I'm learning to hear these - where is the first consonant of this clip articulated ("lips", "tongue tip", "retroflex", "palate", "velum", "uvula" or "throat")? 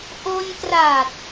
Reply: throat